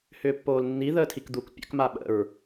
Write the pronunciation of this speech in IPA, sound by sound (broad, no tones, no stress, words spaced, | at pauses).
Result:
hʏːpːoːlnːi ðəːtʰikd̪uk pʲə̰k maɓə̰ɹ